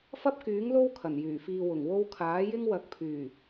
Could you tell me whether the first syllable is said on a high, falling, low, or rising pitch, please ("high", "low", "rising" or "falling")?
high